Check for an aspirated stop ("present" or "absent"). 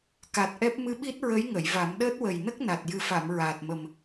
absent